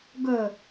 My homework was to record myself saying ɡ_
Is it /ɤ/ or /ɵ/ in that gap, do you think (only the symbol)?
ɵ